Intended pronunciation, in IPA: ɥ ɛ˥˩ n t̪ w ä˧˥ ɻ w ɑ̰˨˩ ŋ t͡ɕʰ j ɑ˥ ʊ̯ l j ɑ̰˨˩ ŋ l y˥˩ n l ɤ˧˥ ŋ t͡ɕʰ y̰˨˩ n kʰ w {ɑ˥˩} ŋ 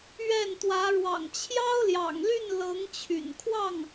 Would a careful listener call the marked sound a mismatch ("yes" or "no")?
no